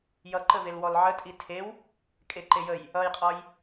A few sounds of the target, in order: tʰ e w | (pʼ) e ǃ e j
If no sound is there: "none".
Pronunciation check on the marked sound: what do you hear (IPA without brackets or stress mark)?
kʼ